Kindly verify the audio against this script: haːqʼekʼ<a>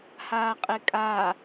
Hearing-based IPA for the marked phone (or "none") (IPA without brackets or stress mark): a